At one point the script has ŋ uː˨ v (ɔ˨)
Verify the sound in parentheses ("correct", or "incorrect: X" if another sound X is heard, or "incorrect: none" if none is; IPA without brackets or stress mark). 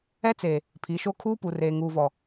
correct